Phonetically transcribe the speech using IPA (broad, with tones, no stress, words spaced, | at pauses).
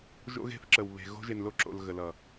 ʒo̰˦ɣe̤˦θǁə˨w βe̤˨ ɣo̤˦ʒe˨nlo˦ǁo̰˨l ɣə˨lʌ˨